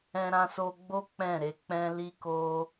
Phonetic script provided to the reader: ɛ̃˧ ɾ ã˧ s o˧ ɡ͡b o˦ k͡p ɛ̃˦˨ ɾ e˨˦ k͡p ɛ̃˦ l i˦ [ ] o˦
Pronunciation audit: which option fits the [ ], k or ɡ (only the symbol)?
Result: k